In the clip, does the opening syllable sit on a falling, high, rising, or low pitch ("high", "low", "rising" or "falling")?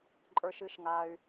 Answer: low